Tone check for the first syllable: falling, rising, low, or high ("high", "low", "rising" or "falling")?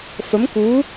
rising